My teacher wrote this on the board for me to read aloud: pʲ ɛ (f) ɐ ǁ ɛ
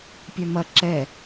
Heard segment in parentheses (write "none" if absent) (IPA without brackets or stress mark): m